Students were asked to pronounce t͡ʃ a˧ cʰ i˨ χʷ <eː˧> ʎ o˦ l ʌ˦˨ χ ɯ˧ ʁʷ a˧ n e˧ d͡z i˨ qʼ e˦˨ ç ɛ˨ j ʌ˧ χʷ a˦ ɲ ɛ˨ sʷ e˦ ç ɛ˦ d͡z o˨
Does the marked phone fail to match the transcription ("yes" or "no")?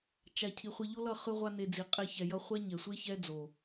yes